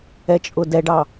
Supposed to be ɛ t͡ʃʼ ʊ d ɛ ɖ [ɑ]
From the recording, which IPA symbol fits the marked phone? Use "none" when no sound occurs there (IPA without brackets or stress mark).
ɑ